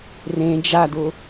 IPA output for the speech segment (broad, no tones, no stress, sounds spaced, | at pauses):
r ẽ d͡ʒ a d ʊ